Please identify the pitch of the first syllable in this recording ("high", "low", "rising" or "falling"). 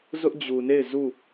high